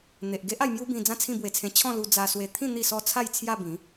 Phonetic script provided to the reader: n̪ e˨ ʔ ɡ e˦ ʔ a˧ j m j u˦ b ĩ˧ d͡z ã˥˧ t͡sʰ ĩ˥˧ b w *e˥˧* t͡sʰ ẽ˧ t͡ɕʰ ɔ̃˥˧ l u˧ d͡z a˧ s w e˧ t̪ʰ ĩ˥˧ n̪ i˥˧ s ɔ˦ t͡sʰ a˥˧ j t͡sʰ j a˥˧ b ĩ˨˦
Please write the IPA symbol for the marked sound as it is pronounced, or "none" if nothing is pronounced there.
e˧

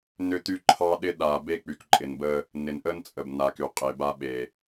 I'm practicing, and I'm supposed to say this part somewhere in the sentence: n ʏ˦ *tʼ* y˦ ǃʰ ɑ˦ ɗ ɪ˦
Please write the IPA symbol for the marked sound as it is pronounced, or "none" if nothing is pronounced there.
t̪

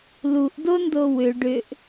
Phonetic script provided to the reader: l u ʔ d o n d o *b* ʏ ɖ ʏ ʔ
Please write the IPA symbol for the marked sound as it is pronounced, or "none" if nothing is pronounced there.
w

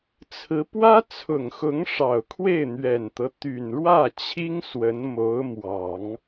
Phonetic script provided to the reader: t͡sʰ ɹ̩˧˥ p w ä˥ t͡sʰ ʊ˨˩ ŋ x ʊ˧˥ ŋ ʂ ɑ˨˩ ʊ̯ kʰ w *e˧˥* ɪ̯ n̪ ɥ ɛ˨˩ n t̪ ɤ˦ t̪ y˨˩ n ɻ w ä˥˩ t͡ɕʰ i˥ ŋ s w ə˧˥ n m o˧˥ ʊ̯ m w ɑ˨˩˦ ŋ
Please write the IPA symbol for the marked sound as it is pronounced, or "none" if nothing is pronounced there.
e˥˩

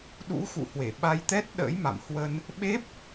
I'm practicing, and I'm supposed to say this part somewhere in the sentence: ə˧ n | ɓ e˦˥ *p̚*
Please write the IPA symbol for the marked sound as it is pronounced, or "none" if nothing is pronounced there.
p̚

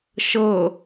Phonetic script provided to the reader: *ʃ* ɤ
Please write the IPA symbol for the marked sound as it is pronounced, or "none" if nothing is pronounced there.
ʃ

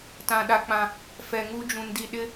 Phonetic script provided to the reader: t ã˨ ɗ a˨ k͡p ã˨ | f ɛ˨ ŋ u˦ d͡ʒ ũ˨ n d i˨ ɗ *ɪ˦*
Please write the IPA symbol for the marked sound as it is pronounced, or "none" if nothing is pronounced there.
ɪ˦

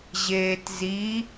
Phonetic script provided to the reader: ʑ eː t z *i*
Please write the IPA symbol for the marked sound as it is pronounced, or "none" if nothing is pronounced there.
i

